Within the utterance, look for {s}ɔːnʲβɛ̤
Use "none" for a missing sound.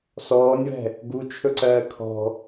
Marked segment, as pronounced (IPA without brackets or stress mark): s